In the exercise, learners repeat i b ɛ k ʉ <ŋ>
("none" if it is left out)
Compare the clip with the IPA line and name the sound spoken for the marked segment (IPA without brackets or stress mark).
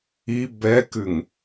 ŋ